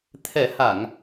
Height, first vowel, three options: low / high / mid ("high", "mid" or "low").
mid